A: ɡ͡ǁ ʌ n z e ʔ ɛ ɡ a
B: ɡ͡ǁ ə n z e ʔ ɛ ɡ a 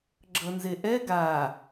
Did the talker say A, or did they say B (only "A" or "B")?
A